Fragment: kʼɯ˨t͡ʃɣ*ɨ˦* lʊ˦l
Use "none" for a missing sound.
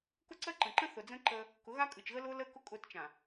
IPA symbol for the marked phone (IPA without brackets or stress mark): ə˦